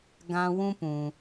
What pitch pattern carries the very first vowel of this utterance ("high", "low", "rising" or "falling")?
high